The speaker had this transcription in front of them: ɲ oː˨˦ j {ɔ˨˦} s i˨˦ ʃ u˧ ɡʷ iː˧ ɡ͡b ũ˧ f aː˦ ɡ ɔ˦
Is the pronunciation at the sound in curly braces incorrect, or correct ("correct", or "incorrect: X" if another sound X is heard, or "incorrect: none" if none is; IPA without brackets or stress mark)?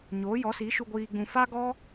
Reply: correct